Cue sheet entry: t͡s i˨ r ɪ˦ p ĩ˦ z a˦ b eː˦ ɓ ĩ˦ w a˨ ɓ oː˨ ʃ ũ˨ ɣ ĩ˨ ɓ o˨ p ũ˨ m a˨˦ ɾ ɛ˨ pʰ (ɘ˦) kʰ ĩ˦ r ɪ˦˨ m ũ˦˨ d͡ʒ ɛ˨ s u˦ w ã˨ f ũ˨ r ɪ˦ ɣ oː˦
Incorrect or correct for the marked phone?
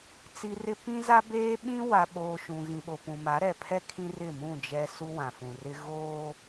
incorrect: ɛ˦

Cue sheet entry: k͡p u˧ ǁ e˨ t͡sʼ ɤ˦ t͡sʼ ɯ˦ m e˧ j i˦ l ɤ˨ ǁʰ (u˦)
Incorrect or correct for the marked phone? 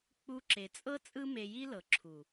incorrect: u˨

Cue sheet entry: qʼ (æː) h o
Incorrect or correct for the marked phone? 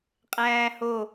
correct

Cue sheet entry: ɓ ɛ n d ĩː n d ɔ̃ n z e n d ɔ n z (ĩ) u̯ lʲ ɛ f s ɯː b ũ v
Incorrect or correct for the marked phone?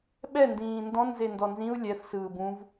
correct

